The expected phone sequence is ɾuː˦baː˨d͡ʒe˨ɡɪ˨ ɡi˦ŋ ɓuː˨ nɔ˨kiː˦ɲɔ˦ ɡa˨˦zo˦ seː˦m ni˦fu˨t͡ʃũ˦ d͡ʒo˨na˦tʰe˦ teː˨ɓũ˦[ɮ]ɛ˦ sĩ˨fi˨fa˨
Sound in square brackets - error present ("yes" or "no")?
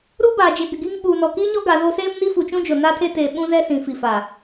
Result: yes